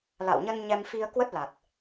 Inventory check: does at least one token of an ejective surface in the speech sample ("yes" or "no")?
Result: no